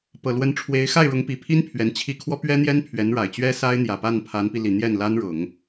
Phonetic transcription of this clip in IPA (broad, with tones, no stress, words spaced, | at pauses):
pɤ˨˩lwə˧˥nʈ͡ʂʰwe˧˥ɪ̯ xa˥˩ɪ̯ɻʊ˧˥ŋpi˨˩pʰi˥n pʰɥɛ˧˥nt͡ɕʰi˥˩ kʰwɔ˥pɥɛ˥n̪jɛ˥n pʰɥɛ˧˥nɻa˨˩ɪ̯ t͡ɕɥɛ˥sa˥ɪ̯n̪jä˨˩pa˥˩n pʰa˧˥npi˧li˨˩ n̪jɛ˥˩nla˥nɻʊ˨˩˦ŋ